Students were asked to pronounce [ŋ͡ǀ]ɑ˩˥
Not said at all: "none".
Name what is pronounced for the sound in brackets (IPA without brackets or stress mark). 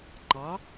ŋ͡ǃ